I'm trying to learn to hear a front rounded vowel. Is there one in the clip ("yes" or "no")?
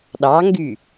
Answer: yes